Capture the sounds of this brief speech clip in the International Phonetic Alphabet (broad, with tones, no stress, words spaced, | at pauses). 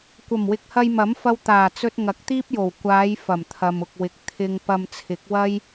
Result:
kʷɐ˨˩mwɪ˨k̚hɐ˧j mɐ˨˥mfɐ˧w t̪aː˨˩ t͡sɵ˧t̚ ŋɐ˨˥k̚t̪iː˥p̚jo˨˩w kʷaː˨˧j fɐ˨˩mt̪ʰɐ˨mʊ˨k̚wɪ˨k̚ t̪ʰɪ˧ŋ pɐ˧mt͡sʰɪ˨˥k̚ wɐ˥j